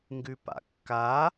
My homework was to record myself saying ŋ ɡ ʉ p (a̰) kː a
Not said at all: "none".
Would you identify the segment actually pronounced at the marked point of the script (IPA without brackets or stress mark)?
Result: a̰